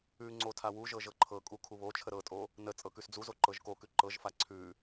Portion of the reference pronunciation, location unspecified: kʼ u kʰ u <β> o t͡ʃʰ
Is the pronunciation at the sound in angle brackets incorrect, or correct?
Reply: correct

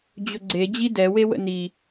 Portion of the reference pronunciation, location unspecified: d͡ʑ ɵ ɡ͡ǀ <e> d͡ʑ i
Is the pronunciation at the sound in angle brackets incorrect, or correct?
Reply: correct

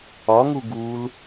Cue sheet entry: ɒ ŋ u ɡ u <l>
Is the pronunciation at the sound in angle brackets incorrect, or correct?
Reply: correct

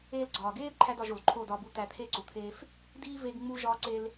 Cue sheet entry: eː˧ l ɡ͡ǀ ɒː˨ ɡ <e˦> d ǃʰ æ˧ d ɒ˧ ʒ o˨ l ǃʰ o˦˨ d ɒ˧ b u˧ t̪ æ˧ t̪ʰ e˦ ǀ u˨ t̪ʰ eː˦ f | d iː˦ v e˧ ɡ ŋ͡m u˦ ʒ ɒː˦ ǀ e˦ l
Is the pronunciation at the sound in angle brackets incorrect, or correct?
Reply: incorrect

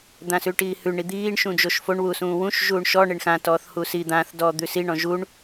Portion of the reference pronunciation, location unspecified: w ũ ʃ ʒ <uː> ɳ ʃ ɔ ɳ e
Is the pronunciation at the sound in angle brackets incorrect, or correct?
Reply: correct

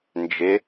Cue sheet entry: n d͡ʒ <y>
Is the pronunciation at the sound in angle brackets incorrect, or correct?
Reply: incorrect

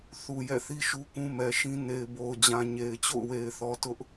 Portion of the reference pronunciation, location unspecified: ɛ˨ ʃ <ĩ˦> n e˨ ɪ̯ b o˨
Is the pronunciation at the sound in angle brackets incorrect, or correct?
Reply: correct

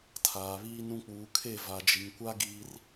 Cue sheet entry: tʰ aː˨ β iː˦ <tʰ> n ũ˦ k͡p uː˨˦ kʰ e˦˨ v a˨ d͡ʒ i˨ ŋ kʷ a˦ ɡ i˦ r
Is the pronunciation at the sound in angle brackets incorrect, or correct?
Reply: incorrect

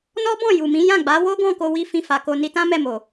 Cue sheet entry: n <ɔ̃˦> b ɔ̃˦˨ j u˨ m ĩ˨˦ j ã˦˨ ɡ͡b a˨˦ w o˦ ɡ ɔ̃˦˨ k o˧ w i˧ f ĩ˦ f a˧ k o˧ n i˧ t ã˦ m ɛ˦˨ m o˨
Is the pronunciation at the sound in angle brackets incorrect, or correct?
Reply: incorrect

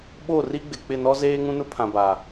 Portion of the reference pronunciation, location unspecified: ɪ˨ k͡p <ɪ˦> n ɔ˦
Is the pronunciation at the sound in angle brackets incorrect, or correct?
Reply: incorrect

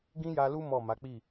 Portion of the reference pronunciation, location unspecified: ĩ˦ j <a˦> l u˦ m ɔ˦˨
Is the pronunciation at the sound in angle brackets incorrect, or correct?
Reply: incorrect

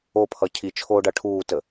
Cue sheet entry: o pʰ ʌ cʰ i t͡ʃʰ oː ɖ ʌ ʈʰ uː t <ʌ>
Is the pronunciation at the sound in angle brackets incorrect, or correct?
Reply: incorrect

